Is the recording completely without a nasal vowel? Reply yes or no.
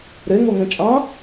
no